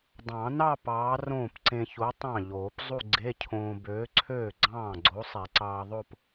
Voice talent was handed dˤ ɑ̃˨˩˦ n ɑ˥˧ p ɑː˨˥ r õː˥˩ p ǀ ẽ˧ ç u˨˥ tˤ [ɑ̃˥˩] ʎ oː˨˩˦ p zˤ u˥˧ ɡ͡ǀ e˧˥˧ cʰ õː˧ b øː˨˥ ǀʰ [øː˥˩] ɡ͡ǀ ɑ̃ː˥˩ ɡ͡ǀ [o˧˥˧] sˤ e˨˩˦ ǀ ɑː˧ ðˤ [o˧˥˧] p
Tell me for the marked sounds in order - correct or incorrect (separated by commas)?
correct, correct, incorrect, incorrect